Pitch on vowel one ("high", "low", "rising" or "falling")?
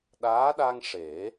rising